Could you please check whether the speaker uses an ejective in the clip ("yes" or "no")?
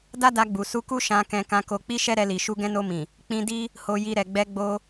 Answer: no